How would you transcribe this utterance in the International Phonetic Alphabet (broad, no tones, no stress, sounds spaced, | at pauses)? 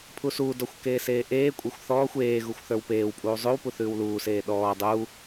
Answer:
pʰ u s uː d ɔ xʷ k eː s eː ʔ eː kʷʼ e xʷ θ ɔː xʷ eː ɣ u xʷ θ ə˞ w p eː w pʼ uː zˤ ʉ w p u θ ʉː w l uː s eː ɗ ɔː dˤ u